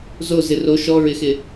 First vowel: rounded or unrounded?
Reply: rounded